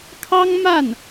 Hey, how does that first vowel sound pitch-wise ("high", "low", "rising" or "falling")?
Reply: high